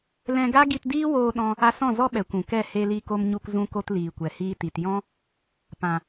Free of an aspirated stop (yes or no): yes